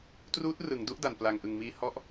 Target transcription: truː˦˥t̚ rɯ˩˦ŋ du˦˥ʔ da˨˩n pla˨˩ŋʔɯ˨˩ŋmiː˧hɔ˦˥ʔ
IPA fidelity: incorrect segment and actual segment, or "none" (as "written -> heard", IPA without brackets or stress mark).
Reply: none